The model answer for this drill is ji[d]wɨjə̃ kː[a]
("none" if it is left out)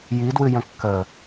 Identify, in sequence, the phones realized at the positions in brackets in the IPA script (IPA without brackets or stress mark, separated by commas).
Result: d, ə